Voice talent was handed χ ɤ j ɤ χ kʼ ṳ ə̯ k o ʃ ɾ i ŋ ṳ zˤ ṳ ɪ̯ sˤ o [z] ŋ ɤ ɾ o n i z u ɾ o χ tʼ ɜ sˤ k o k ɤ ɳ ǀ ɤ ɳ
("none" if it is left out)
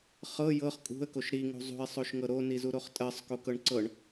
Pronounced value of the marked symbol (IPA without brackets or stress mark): ʃ